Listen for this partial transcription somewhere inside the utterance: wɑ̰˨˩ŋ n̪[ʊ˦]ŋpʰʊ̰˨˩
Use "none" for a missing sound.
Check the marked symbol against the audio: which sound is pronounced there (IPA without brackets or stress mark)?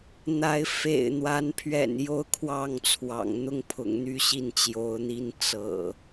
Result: ʊ˦